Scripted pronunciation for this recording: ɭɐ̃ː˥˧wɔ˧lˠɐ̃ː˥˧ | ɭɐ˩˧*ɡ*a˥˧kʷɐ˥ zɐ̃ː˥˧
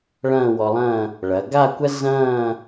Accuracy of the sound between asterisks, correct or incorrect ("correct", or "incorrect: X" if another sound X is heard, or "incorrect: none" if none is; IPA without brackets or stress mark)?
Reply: correct